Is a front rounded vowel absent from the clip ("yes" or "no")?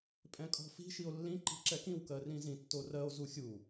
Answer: yes